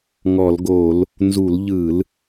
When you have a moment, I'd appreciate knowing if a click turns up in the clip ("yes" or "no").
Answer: no